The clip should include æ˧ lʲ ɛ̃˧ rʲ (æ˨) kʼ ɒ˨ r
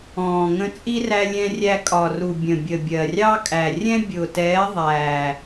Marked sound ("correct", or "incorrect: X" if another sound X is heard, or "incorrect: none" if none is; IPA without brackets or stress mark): incorrect: æ˧